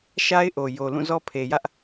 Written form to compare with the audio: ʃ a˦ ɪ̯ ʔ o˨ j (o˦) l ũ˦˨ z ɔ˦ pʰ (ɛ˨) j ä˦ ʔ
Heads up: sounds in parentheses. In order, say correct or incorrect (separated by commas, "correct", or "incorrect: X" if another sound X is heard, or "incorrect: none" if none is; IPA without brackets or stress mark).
incorrect: o˨, incorrect: e˨